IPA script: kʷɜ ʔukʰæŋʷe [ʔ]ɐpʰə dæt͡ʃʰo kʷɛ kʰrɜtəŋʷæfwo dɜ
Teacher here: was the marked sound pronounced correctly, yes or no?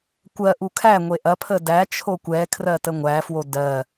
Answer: yes